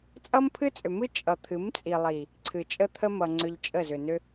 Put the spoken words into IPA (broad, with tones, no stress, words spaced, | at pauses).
t͡sʼʌ˦mpʰɨ˦t͡sʼʏ˨mɨ˦ t͡ʃʼʌ˨t̪ʰɨ˨˦mt͡sʼi˨lˠi˨ | ǀʰɨ˨ t͡ʃʼə˦t̪ʰə˦mʌ˨ ŋ͡ǀʏ˧ʎt͡ʃʼə˦˨zʏ˨ nʏ˦